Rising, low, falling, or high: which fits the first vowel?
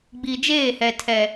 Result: low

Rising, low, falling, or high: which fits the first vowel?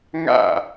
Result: falling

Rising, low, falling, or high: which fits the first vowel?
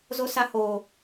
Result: high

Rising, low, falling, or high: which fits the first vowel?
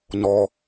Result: low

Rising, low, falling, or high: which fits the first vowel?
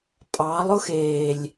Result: rising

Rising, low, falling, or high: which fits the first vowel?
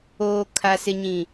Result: low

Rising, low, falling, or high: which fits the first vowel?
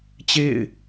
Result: falling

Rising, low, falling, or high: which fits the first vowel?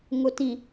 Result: rising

